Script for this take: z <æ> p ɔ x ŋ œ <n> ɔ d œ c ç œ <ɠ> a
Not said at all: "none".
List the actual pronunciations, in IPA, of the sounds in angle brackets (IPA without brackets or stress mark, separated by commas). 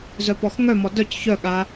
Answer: œ, m, ɠ